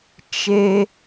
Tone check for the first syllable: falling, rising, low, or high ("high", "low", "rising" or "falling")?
low